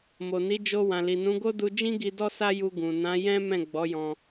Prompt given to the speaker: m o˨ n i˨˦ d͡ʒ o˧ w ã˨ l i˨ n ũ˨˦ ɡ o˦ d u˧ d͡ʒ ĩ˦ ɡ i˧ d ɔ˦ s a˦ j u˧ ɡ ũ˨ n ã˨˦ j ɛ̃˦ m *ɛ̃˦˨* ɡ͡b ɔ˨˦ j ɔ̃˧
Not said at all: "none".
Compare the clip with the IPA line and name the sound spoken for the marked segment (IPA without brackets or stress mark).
ɛ̃˦˨